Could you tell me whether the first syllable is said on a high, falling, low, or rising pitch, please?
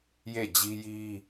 falling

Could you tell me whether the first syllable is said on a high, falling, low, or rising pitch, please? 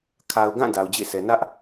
low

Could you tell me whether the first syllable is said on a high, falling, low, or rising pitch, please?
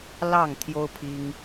falling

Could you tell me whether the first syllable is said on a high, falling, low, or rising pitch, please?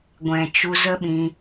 low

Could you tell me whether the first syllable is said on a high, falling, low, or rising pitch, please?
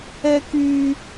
high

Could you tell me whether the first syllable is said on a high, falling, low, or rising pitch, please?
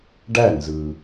falling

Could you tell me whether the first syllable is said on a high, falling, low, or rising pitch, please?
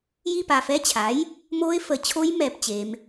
falling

